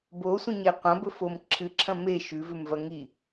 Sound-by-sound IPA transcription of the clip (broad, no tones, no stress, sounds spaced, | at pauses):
b o sʷ ĩ ɲ e qʷ ɐ̃ b ɵ f o m ǁʰ ɨ ǁʰ ɐ̃ m e ʃ ʉ v ʉ m v ɐ ŋ i